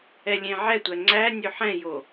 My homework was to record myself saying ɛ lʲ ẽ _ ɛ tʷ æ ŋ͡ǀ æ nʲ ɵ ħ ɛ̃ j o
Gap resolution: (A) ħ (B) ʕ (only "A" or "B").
B